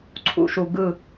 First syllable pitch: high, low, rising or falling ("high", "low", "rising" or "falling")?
low